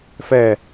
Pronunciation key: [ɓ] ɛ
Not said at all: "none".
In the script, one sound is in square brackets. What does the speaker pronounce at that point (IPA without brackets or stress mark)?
f